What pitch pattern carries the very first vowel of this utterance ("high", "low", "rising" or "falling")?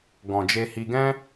low